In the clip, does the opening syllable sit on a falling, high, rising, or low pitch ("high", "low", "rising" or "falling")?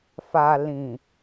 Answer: low